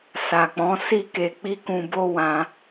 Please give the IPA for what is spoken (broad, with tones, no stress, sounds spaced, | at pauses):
s a˨ k͡p ɔ̃˨˦ s i˦˨ k e˧ k͡p i˦ k ũ˧ b o˦ w ã˧